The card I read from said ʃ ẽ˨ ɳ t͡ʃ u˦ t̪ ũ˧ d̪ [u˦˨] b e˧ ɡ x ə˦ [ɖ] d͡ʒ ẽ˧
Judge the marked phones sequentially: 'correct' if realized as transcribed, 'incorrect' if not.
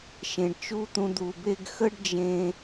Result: incorrect: u˨, correct

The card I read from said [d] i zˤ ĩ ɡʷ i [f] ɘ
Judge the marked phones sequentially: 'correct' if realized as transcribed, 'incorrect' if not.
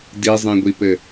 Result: correct, incorrect: p

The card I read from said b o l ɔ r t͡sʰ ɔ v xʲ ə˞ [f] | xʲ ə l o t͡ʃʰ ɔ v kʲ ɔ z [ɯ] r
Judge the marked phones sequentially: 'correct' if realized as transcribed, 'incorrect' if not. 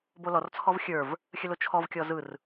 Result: incorrect: v, correct

